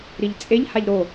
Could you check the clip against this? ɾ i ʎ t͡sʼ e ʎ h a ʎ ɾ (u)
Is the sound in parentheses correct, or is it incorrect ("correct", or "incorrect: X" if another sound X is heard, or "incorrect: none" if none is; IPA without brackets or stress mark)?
incorrect: o